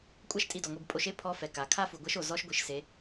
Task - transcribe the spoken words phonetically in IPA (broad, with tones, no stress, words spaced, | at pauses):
kʷʼa˥ʃtʼi˧dɔ˩ŋʷe˧b pʼo˧ʃe˥ pʰɔ˧˥fɛ˩ ka˩ kʰa˥fu˩ɡʷɛ˧˥ʃo˩ zɔ˧˥ʃɡʷi˩˧ʃse˩˧